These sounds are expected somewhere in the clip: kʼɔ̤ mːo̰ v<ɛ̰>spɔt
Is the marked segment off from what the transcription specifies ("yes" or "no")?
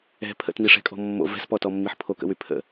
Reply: yes